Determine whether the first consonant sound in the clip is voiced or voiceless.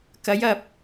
voiceless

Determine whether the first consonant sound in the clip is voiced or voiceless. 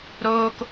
voiced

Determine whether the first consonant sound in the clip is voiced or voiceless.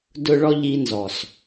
voiced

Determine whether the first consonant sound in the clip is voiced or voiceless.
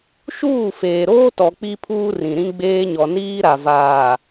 voiceless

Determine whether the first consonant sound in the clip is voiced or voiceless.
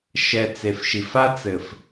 voiceless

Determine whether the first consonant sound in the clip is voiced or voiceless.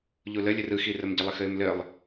voiced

